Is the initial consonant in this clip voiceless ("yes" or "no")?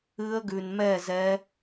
no